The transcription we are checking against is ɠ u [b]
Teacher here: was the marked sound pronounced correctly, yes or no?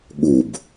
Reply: yes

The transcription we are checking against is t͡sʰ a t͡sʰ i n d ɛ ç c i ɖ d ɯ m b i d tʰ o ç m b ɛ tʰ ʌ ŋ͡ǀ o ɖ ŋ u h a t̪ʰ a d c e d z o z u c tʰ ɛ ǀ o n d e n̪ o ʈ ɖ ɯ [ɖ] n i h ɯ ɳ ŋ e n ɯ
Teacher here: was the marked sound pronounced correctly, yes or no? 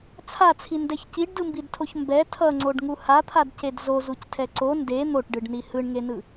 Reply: yes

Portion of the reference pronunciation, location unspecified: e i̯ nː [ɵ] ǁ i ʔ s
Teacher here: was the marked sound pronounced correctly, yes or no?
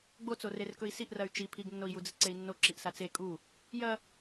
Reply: no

